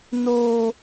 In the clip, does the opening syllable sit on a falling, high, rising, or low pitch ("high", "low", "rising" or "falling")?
high